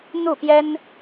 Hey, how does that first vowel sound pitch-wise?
falling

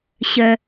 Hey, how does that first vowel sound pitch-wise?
high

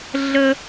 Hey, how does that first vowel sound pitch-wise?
high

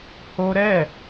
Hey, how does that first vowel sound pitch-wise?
high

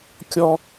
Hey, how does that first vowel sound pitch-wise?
high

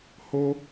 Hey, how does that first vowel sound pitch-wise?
high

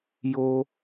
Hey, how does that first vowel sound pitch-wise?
high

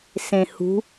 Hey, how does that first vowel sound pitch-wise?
low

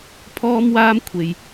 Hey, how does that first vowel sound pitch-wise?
high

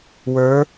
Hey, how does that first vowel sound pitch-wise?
rising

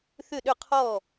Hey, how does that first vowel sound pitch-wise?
falling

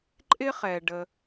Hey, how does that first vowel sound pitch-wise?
high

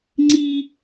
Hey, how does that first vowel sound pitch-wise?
high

